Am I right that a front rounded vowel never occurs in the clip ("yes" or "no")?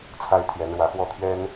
yes